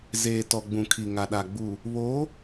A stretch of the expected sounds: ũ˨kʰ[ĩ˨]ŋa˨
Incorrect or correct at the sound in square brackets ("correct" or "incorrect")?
incorrect